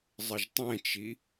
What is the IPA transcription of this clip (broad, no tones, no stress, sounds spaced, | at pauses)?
zˤ ə ʒ tˤ ɛ̃ t͡ʃ i